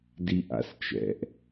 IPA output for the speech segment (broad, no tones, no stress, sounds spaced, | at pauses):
d i ʔ a̰ s t͡ʃ ɛ̰ ʔ